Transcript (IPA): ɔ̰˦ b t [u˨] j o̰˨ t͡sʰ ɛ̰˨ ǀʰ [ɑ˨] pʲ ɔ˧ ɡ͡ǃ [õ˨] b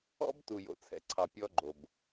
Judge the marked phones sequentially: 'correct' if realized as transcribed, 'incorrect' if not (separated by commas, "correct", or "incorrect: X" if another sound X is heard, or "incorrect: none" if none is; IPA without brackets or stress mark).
correct, correct, incorrect: o˨